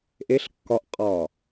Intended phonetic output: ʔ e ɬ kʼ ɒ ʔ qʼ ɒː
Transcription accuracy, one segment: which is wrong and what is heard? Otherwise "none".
kʼ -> kː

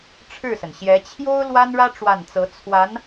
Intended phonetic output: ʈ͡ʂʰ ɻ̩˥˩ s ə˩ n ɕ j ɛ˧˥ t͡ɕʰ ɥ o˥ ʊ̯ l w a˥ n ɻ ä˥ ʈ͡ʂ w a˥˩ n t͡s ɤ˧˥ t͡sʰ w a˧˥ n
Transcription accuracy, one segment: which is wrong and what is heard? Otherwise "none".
ɥ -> j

